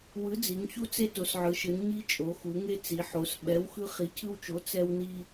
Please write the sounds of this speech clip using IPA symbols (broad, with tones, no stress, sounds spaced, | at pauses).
w ɯ˨˥ d͡z i˩˧ ŋ ç u˦ t͡s e˦ t o˩˧ s ʕ ɯ˩˧ ʃ ɯ˩˧ n ɲ i˦ t͡ʃʼ o˩˧ x u˩˧ ŋ e˦ t͡s i˩˧ ħ o˩˧ s ɓ ɛ˨˥ w x ɯ˦ χ i˨˥ cʰ ɯ˦ w t͡ʃ o˨˥ t͡s ɛ˦ w n i˦